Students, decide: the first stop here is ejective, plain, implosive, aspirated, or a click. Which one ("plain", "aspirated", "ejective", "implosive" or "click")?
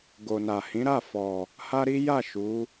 plain